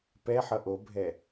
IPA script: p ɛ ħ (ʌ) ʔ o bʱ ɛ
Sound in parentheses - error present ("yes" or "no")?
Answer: no